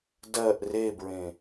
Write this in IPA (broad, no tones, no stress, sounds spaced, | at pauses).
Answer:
d ɜ ʔ r e b ɹ ẽ